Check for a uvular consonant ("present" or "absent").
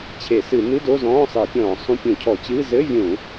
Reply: absent